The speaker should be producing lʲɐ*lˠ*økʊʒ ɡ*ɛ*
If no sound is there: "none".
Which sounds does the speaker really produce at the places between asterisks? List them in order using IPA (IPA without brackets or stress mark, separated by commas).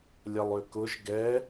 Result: lˠ, ɛ